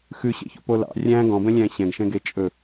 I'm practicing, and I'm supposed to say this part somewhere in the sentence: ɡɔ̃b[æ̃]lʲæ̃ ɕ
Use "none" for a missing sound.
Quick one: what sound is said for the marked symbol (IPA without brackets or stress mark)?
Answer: ɛ̃